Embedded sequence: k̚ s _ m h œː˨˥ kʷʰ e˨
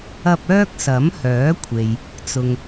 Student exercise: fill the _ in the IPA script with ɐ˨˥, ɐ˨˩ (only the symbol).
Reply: ɐ˨˥